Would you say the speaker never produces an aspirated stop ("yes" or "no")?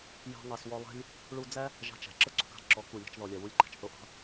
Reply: yes